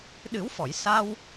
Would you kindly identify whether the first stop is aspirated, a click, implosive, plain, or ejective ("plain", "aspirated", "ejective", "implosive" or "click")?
implosive